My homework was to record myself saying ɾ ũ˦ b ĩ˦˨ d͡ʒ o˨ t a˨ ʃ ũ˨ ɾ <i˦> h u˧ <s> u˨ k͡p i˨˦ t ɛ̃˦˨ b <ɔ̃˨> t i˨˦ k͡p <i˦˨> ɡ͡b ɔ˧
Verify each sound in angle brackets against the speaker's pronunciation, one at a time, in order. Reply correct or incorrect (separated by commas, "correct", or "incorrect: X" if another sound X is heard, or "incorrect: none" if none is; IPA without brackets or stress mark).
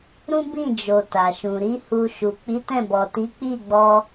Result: incorrect: i˨˦, incorrect: ʃ, incorrect: ɔ˨, correct